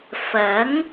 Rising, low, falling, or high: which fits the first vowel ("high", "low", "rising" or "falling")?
rising